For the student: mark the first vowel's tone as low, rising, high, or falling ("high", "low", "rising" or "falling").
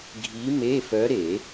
rising